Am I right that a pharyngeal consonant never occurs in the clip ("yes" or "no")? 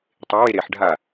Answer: no